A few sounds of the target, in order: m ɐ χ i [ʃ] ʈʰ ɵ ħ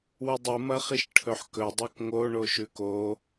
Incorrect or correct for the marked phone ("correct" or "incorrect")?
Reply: correct